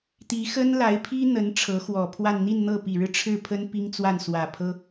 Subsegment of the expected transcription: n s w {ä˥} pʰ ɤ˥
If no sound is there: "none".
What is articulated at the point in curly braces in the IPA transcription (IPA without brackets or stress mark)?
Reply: ä˨˩